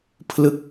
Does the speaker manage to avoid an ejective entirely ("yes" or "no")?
yes